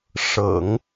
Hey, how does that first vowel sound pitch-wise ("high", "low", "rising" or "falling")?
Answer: low